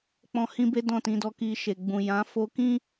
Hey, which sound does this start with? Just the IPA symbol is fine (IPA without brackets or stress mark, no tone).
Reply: k͡p